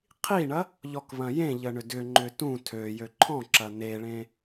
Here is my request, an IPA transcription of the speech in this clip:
qʰiɳɐ | ʎɔkβɐ̃jẽʎə ɳʏdʏŋ͡ǃʏ tũ tʰøjø ǃʰɔ̃ǁɐ neɭẽ

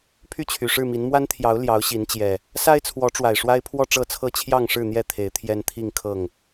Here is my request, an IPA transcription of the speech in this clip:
pʰy˥˨t͡ɕʰy˨˩ʂɻ̩˥˨mi˨˦n mwa˦nt̪ʰjɑ˨˦ʊ̯ ljɑ˨˦ʊ̯ɕi˨˦n t͡ɕjɛ˨˩ | sa˦ɪ̯t͡sʰwɔ˨˦ʈ͡ʂwa˨˩ɪ̯ ʂwa˦ɪ̯pʰwɔ˥˨ʈ͡ʂɤ˥˨t͡sʰɤ˥˨ t͡ɕʰjɑ˥˨ŋʂɻ̩˥˨n̪jɛ˥˨ t̪ʰe˨˦ɪ̯t̪ʰjɛ˦nt̪ʰi˥˨ŋ kʰɤ˥˨ŋ

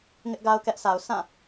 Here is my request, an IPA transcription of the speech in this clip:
ŋɪ˦ʔɡa˦ʊ̯kɛ˦ʔsʰa˨ʊ̯ sʰã˦˨

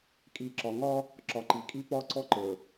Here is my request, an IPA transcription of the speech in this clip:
kʼi˨ǁɒ˨ŋɒ˦ | ǁɒ˨ǃi˨kʼi˦ pɒ˦˨ǀɔ˦ǃə˞˨

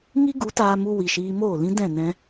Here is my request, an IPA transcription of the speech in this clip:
ŋi˦ ɡu˨˦taː˧mu˧ wi˨ʃiː˧moː˦˨lĩ˦ dɛ̃˦˨nɛ̃˧

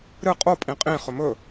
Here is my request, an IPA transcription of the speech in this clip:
ɾɨ qʼopʼĩ qʼĩχɵ mɵ

